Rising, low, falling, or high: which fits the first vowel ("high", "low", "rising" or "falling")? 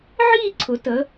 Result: falling